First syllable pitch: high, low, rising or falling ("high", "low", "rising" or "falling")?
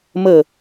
falling